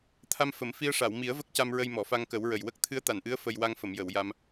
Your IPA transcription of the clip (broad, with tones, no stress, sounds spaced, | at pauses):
t̪ʰ a˧ m f ə˨˩˨ m f i˧ ə̯ ʂ a˨˩˨ w m i˨˩˦ ə̯ v ə˦˥ k̚ c a˧ m ɹ ə˧ j m ɔ˨˩˨ f a˧ ŋ k ə˨˩˦ w ɹ ə˨˩ j w ə˦˥ k̚ t̪ʰ ɨ˧˥ ə̯ t̪ a˨˩˨ n ʔ ɨ˧˥ ə̯ f ə˧ j w a˧ ŋ f ə˨˩˨ m j ə˨˩˨ w j a˧ m